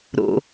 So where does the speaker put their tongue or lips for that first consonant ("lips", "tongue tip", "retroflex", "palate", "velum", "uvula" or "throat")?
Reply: tongue tip